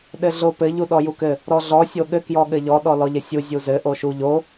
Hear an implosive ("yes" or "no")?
yes